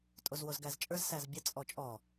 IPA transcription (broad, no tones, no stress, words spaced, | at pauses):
tʼozwozɡæzt͡ʃʼə˞z sæzbʲə t͡sʼɔt͡ʃʼɔ